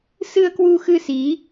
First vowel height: high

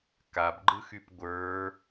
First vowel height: low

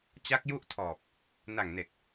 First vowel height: low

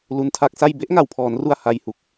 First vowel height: high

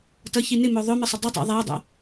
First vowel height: mid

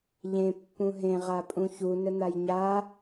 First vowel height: mid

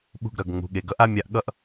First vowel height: high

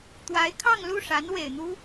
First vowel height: low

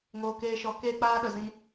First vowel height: mid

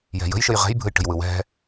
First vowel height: mid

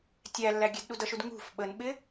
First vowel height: low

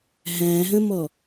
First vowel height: low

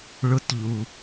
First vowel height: high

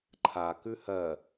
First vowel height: low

